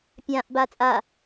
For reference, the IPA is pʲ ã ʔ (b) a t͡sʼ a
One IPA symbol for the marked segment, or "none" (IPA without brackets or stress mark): b